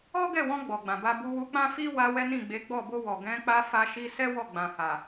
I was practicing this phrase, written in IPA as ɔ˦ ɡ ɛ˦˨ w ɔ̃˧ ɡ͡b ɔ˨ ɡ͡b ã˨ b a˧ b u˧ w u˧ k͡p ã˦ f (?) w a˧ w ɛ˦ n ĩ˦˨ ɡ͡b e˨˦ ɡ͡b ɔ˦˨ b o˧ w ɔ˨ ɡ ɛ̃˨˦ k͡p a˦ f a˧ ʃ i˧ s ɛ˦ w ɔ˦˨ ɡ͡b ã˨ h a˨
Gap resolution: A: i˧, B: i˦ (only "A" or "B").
B